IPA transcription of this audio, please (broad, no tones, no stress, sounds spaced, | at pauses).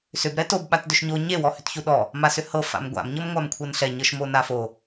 s ʏ b ɾ ɛ t o b ɓ a t d ʏ ʃ ɲ o ɲ e w ɔ h ʏ t ç u ɗ ɔ | m a s ʏ h ɤ f a̰ m ɡʷ a̰ m ɲ ɤ m ŋʷ a m kʷʰ ɤ n ɬ ɛ ɲ ɤ ʃ m o n a f o